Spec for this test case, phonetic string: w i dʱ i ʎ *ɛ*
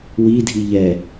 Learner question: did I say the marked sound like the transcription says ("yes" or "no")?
yes